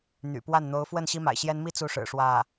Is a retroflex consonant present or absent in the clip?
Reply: present